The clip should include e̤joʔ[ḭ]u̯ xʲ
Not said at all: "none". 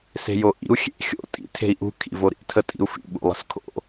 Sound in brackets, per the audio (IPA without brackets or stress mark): ḭ